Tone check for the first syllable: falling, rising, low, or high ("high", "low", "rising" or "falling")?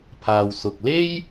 low